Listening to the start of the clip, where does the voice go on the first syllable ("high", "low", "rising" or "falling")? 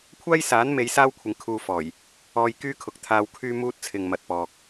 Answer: high